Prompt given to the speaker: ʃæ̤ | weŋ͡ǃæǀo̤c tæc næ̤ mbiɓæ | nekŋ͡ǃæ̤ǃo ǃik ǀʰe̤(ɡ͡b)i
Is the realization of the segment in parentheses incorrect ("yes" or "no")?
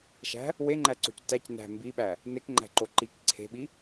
yes